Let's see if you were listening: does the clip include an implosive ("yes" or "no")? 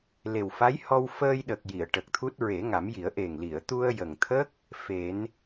yes